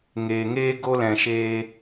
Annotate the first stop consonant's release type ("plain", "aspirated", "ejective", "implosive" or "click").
plain